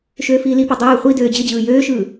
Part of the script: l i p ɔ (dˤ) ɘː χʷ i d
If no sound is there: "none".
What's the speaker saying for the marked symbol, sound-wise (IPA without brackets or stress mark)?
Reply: dˤ